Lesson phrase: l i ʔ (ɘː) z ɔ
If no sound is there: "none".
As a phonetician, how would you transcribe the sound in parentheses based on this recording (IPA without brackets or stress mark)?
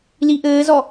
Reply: ɘː